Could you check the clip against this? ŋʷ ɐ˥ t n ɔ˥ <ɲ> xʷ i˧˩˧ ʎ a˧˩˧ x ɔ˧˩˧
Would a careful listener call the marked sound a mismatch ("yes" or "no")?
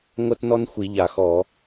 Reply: yes